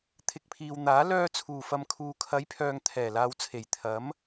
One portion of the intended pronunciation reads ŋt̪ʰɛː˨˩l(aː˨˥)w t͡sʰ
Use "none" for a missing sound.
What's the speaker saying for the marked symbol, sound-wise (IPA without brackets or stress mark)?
aː˨